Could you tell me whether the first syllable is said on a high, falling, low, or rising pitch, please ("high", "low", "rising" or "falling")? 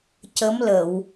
rising